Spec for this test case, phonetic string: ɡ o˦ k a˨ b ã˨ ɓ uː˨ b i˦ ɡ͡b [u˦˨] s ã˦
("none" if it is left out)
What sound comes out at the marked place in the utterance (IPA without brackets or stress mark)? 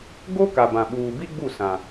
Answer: u˦˨